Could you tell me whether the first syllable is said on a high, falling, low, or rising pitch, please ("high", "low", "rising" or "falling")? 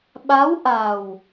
rising